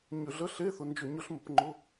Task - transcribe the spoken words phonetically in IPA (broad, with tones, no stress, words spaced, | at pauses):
ɲʏ˧˩˧ɮə˧˥˧ ɬe˧˥˧θʊ˧nd͡ʒʏ˧˩˧ ɲʊ˧˩˧ɬmə˩˧p ŋ͡ǃʊ˧˥˧